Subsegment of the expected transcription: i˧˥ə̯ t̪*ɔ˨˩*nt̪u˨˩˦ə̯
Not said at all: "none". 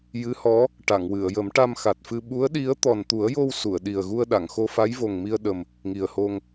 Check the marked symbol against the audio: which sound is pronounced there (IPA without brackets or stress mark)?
ɔ˨˩